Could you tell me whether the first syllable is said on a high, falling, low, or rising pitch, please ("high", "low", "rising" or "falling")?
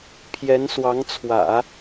rising